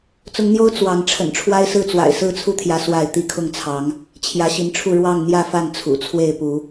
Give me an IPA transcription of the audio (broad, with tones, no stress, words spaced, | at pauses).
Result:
t͡sʊ˨˦ŋn̪jo˦ʊ̯ t͡swɑ˨˦ŋ ʈ͡ʂʰə̰˨˩nʈ͡ʂʰwa˦ɪ̯sɹ̩˥˨ t͡swa̰˨˩ɪ̯sɹ̩˥˨t͡sʰu˦t̪ʰjä˨˦ swa˥˨ɪ̯ t̪i˥˨kʰʊ˥˨ŋt͡sʰɑ˨˦ŋ | t͡ɕʰjä˨˦ɕi˨˦nʈ͡ʂʰu˥˨ ɻwɑ˥˨ŋn̪jä˥˨fa˥˨n t͡sʰṵ˨˩t͡sʰwe˥˨ɪ̯pu˨˦